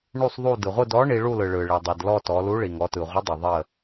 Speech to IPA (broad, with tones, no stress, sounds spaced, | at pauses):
ɳ u˦˨ sˤ ðˤ u˦˨ d ɯ˩ ʁʷ ɯ˦˨ d ɔ˨˥ ɳ i˩˧ ɭ u˦˨ l ɯ˩ ɭ ɯ˩ ɭ i˩ dˤ i˩ d l ɔ˦˨ t ɔ˩˧ l u˨˥ ɭ i˩ ŋ ɔ˩˧ t ɯ˩ ʁʷ ɘ˨˥ dˤ ɘ˩ ðˤ ə˦˨